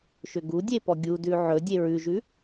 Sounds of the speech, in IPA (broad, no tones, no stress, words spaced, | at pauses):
ʃʏɡudʲe pɔɡʲudʉ ʕɵ dʲeɹʉʒʉ